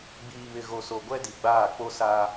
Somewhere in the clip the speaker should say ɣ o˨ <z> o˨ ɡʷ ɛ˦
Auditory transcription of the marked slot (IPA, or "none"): s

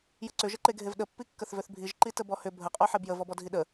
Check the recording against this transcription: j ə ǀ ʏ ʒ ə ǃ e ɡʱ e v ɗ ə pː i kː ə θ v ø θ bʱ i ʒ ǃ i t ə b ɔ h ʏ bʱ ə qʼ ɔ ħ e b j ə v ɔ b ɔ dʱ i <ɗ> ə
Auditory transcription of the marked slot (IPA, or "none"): ɗ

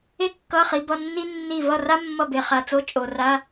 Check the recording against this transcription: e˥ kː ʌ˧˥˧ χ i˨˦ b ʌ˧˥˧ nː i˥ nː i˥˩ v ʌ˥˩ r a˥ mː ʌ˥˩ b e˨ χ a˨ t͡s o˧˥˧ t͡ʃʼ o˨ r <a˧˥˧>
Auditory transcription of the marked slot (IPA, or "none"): a˧˥˧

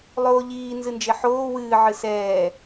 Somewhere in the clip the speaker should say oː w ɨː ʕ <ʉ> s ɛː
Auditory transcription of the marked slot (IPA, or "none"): ɨ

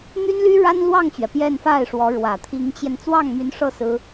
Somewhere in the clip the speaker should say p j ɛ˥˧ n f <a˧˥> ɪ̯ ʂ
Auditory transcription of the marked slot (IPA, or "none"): a˥˩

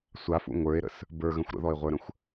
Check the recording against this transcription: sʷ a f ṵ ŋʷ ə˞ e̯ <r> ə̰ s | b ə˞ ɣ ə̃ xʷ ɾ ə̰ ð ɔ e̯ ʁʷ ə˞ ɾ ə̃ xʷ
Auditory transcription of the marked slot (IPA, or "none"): ɾ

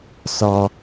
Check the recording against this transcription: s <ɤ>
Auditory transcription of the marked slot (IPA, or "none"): ɔ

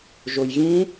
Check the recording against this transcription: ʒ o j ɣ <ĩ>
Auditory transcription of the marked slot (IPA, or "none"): ĩ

